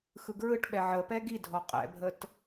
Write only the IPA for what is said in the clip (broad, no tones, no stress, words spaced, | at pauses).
xɯɡɹɯʈɓɛ ʕəpɛ ɡidʱɔ qʼɛ̰bʱət